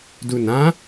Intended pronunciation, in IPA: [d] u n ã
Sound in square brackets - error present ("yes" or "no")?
no